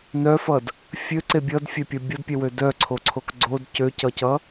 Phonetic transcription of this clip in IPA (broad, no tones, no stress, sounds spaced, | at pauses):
n œ f ʌ d | fʲ ø ǀ e bʲ ʌ d fʲ ɛ pʲ ʌ bʲ ʌ d pʲ ɛ w ø d œ ǀʰ o ǀʰ o k ɡ͡ǀ o d c ø c ʌ c ʌ